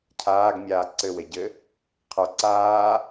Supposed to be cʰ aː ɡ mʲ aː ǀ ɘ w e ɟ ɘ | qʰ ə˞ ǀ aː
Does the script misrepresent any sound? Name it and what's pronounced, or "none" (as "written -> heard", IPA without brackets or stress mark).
none